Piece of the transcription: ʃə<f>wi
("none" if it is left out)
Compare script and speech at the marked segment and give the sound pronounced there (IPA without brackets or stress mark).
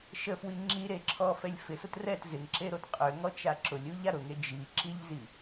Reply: f